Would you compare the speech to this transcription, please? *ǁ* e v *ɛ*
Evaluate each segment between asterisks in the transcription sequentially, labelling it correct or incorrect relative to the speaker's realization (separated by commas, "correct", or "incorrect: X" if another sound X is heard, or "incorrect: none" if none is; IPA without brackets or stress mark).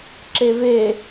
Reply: correct, incorrect: e